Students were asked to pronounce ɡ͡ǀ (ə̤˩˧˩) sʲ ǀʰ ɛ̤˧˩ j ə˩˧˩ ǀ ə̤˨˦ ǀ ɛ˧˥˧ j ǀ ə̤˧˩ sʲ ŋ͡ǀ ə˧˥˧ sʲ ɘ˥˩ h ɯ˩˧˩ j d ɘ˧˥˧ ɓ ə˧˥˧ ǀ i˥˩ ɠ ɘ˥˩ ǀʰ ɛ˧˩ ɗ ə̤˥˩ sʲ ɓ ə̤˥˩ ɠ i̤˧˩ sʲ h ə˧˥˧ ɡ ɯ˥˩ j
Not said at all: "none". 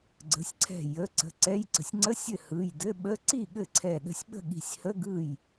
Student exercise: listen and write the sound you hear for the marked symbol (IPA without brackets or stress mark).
ə̤˩˧˩